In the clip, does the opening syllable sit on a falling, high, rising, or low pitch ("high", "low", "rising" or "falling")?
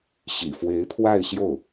low